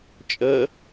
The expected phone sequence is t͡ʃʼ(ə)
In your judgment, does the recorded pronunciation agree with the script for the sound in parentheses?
yes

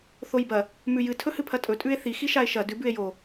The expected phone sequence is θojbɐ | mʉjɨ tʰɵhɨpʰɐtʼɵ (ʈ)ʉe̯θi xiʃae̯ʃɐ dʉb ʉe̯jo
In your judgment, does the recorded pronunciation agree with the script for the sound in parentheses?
no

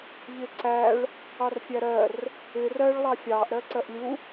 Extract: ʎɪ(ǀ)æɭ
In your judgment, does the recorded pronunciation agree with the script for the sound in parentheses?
yes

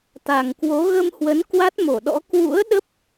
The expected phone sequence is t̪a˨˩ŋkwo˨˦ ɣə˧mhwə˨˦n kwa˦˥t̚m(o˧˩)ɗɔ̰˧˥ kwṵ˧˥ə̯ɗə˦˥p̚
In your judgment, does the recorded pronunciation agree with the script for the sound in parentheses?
yes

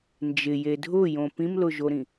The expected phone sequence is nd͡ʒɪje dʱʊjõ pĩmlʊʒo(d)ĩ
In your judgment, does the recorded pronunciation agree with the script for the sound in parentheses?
no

